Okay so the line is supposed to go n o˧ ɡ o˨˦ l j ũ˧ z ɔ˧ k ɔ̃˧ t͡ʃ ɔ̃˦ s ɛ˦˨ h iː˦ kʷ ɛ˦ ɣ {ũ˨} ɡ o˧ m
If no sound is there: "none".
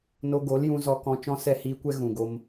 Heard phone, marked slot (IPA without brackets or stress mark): ũ˨